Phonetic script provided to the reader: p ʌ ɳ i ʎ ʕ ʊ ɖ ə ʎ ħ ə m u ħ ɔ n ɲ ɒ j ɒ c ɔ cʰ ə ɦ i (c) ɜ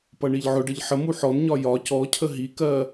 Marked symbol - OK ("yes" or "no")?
no